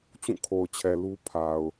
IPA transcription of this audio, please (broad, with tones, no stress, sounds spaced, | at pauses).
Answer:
t͡ɕ ũ˦˨ kʰ o˨ ʊ̯ t͡ɕʰ ɛ˨ l u˦ pʰ a˨ ʊ̯